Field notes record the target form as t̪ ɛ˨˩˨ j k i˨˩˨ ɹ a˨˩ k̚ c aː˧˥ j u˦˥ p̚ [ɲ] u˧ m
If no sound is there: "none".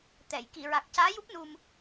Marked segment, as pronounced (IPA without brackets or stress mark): n